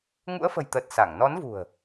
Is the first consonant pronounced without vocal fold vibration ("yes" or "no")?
no